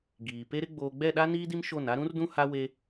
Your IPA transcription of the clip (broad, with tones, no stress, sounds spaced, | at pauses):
ɡ iː˨ p e˦ ɾ ɪ˦ ɡ͡b oː˨ ɡ͡b ɛ˦˨ ɗ a˦ n iː˦ d i˦ m ʃ o˦˨ n a˦ ɾ ũ˦ r d ũ˦ h a˦ w e˦